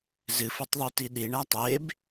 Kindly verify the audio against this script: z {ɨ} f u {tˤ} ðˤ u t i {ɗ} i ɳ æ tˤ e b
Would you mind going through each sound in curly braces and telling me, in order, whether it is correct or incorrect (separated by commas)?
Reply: correct, correct, correct